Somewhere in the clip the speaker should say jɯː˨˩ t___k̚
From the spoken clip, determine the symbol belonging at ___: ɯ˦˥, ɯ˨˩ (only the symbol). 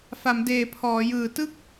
ɯ˦˥